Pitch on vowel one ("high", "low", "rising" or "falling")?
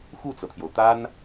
falling